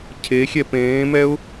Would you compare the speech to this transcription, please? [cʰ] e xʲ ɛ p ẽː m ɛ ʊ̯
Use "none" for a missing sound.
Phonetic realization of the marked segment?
cʰ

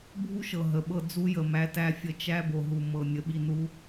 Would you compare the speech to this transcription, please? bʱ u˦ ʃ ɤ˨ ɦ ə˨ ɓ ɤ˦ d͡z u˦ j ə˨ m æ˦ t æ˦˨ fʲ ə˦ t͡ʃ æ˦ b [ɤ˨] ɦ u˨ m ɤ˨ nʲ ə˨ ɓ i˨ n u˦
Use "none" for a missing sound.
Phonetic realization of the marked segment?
o˨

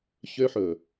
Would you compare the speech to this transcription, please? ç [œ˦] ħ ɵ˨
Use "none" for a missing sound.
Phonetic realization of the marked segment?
ø˦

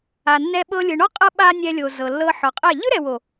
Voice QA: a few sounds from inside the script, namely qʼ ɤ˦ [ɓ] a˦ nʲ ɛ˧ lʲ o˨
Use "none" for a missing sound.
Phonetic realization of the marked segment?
ɓ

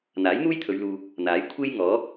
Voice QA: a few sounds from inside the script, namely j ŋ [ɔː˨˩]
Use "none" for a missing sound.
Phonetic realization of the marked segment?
ɔː˨˥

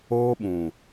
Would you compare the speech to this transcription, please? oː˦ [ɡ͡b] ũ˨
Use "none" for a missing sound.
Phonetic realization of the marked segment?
ɓ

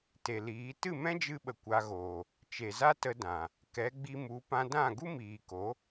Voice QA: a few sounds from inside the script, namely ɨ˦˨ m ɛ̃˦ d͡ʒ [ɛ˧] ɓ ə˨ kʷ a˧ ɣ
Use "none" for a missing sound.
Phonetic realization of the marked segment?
ɨ˧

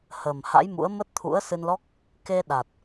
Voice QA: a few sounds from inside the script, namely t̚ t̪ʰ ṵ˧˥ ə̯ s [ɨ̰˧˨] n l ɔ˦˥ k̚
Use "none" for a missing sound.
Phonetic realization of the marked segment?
ɨ˧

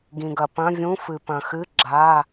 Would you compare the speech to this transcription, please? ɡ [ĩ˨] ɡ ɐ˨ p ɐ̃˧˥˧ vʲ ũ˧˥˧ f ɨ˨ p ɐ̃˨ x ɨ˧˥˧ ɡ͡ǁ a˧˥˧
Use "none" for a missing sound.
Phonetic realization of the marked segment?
ĩ˨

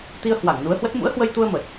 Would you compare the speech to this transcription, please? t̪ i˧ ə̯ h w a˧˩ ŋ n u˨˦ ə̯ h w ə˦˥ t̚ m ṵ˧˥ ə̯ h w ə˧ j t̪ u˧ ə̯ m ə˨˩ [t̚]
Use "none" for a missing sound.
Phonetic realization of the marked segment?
t̚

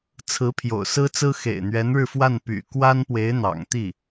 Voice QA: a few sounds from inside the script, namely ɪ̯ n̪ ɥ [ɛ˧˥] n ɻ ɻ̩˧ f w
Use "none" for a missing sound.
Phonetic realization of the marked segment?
ɛ˧˥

